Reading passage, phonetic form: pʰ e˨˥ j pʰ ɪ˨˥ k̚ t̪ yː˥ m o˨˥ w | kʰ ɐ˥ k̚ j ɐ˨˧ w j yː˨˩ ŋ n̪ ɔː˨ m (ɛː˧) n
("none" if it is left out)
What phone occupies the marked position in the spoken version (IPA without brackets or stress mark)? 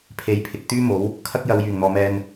ɛː˧